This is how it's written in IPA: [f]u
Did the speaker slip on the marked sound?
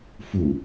no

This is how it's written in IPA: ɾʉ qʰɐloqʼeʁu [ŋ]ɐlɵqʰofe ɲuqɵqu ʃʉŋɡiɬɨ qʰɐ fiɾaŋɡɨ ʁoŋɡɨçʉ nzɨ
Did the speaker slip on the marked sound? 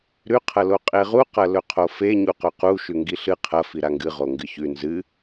yes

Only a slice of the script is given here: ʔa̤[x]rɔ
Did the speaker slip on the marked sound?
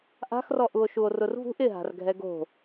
no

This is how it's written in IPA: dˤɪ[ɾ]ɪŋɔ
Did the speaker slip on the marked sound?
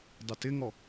yes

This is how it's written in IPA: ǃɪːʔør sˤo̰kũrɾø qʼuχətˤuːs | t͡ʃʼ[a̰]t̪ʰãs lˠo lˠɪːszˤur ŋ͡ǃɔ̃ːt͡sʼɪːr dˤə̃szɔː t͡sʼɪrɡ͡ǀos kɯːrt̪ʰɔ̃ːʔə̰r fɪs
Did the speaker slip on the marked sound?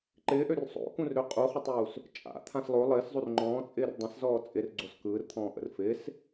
no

